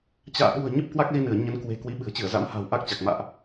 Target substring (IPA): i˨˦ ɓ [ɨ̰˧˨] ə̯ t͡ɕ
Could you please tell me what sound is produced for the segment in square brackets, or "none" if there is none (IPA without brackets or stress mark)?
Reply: ɨ̤˨˩